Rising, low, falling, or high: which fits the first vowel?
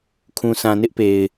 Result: low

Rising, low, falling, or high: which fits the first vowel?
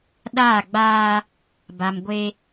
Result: falling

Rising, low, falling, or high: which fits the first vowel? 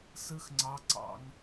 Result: high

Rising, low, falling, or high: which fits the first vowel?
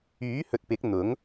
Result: rising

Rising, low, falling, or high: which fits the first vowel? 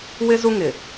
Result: high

